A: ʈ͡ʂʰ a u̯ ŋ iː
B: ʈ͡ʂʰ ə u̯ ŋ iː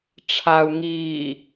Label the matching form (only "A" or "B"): A